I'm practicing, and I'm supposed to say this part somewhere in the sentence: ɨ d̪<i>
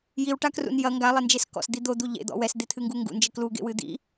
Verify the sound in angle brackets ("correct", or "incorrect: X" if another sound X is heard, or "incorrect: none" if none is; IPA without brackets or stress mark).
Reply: incorrect: ḭ